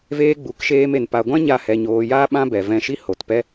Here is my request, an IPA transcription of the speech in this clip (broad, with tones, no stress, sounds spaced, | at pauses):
v eː˧ ɡ͡b u˨ k ʃ eː˧ m e˨ n p a˨ ɡʷ ã˦ ɲ a˦˨ h ɛ˧ ɲ oː˧ j a˦ ɓ ã˦ b ɛ˨ v ɛ̃˧ ʃ i˦ h o˨ t p ɛ˦